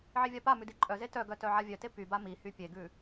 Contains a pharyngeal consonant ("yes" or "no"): yes